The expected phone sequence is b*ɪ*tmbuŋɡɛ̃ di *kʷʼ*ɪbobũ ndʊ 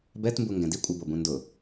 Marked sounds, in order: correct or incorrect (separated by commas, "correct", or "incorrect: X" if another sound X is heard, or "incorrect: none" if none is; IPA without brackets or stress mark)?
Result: incorrect: ɛ, correct